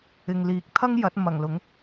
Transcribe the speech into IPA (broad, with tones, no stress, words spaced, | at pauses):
ɪ˨ŋliː˨˥k̚ t̪ʰɐ˥ŋ jɐ˨˥t̚ mɐ˨˩ŋ lʊ˨˥ŋ